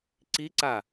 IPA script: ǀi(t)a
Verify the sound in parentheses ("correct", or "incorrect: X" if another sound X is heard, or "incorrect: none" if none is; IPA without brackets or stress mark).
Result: incorrect: ǀ